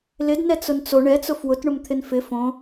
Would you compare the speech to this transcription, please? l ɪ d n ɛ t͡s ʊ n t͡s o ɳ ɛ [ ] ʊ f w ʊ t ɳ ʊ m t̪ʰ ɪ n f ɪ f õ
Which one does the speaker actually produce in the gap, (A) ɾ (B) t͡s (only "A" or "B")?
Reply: B